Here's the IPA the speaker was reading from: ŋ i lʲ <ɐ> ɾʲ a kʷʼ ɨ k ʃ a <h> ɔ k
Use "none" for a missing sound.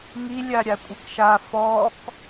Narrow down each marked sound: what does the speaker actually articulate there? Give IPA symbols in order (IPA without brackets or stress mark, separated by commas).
a, f